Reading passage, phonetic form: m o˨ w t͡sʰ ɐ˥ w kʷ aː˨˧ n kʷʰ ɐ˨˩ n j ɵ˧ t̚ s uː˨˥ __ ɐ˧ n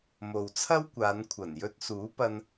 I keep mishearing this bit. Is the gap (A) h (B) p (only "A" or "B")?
B